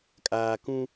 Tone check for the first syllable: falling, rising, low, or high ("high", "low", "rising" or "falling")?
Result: low